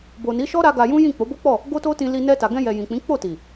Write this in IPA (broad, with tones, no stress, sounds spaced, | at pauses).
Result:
b o˨ n i˨˦ ʃ ɔ˦ ɾ a˦ ɡ a˧ j ũ˦ j ĩ˦˨ k͡p o˨˦ b o˦ k͡p ɔ˦˨ | ɡ o˦ t o˦ t ĩ˧ l i˧ n ɛ˧ t a˨ ɡ ɛ̃˧ j ɛ˨ j ĩ˨ k͡p ĩ˨˦ k͡p o˦˨ t i˨